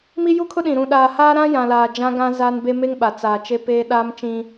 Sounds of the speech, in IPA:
mi˦ju˦ kʰʊ˦ɗĩ˨ ɾũ˨ɗaː˨haː˦ ɾã˦jã˨laː˨ d͡ʒã˦ ɡã˦zaː˦nbe˦ me˦ŋɓa˨ t͡saː˨ t͡ʃe˦peː˦ ɗaː˦mt͡ʃĩ˦

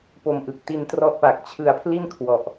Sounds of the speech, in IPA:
po˧mʔɯ˨˩k̚ ti˧ntrɔ˦˥ʔpa˨˩k̚ t͡ɕʰɯ˧a̯pʰli˥˩nkʰwɔ˨˩ʔ

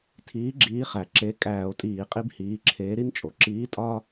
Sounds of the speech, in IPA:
tʰiː˨˥ɡ͡ǁiː˨˥χæ˩ ǁe˩˧˩ kʼæː˧˩˧o̯ tʼiː˧˩˧qʼi˦bhiː˩˧˩ǁʰeː˨˥ ɾi˦nt͡ʃʼo˩ ǁiː˨˥tʼɒ˦

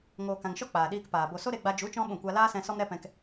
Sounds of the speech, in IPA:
ŋoː˨kã˨ŋʃɔ˦ k͡paː˨ɗiː˧kpaː˨ bo˨ so˦ɾe˧ɡ͡ba˧ d͡ʒu˨˦t͡ʃɔ̃˧ ɓũ˦˨kʷa˦ laː˦sɛ̃˧ sɔ˦mɾɛ˦pɛ̃˧k

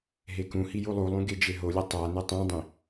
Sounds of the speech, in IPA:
ɦekũhi julˠulˠũ ɡed͡ʒeɦolʲʌ tˤane tˤũdˤĩ

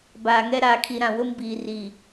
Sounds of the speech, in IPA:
baː˨ŋɛ˦ ɾaː˨kʰi˨ɾã˨ wʊ˦m biː˨ri˨

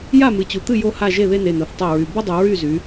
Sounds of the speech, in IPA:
ja˥˩mɨ˩˧t͡ɕu˩˧t̪ɨ˥˩ jo˥˧ha˥˩ ʒe˥˩ðe˥˧ne˩˧˩no˩˧˩θ tˤe˥˩ɹy˩˧˩ bɯ˥˧dˤɨ˩˧ ɹy˥˩zy˩˧

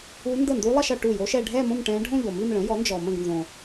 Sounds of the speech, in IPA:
u˦˥ ndə˥˩ndu˦˥lˠʌ˥˧ʃʌ˨ ʈu˥˩jo˦˥ʃɛ˥˧ ɖʱɛ˥˧ mõ˥˧m ʈɛ̃˦˥ ɖʱõ˥˧ʎo˨mi˥˧m ɭə̃˩˥jɔ˩˥nd͡ʒɔ˨ mə̃˥˩ɡnzõ˨

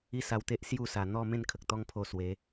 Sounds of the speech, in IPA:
i˦sa˧wt̪e˦ʔ sju˥˧sa˨˩ n̪ɔ˥˧ mẽ˥˧nkʰə˨k̚t̪ɔ˦ŋpʰo˧ swe˨˦

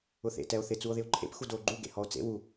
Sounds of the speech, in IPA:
ʊθḛ tɛo̯θɪ t͡suo̯ðɪo̯ǃʰḛp xudoːɡ͡ǃu ɡḛhɔo̯t͡sḛ wu

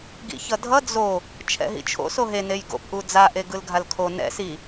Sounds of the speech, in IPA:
ɡḭçʌdʱʌ d͡zo | t͡ʃʰɛ̰ɦḭt͡ʃʰo̰ soɦe nejɡo̰p ʔud͡za ʔeɡɯlɡʱalkʰo nɛ̰ si

